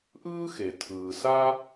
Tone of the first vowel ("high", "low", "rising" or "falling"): high